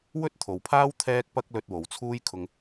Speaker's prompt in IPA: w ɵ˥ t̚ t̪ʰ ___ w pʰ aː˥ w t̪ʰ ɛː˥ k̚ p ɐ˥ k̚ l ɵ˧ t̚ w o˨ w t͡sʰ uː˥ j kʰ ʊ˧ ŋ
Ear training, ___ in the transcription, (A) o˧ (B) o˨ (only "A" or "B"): B